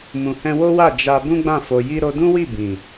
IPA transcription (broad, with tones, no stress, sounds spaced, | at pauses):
m ũ˨ h ɛ̃˧ w o˦ w a˦˨ d͡ʒ a˧ b ũ˦ ɡ͡b ã˦˨ f o˨ j i˧ ɾ o˧ d ũ˦ w i˦˨ b ĩ˨